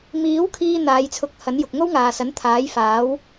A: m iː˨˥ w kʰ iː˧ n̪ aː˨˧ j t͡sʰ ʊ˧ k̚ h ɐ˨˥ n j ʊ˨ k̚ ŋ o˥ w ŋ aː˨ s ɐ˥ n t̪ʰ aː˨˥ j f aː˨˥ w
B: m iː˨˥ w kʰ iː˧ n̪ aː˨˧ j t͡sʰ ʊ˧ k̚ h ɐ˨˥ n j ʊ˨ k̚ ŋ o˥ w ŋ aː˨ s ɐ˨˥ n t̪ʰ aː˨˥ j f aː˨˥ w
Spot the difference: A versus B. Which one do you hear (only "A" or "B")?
B